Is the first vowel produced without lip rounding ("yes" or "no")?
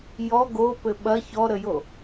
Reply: no